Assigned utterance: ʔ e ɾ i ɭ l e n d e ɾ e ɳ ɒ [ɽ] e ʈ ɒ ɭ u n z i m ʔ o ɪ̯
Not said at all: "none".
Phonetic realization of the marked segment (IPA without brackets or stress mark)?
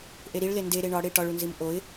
ɽ